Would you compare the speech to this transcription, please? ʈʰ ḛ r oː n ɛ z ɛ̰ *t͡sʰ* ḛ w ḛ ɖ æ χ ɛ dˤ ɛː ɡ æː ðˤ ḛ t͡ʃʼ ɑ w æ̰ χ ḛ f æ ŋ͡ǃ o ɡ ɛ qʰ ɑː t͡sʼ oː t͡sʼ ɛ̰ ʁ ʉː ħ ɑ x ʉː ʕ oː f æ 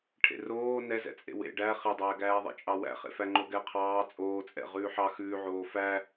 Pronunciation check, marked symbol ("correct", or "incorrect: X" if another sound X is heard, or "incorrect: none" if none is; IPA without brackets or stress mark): incorrect: t͡sʼ